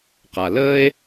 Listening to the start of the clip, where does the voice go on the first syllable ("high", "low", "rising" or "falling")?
low